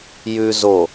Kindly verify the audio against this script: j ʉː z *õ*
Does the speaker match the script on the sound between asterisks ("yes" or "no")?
no